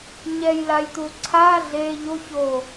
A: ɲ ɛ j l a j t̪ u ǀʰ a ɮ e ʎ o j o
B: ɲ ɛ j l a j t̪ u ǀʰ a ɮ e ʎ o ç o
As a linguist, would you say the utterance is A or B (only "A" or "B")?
B